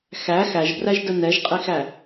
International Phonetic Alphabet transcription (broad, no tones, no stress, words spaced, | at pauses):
xæ xæʒbræʒdə nɛʒqʼixæ